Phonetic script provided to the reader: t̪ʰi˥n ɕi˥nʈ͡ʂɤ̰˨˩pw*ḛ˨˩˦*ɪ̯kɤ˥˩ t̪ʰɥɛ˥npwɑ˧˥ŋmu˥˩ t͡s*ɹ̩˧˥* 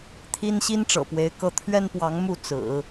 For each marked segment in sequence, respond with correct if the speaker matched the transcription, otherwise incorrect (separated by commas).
incorrect, incorrect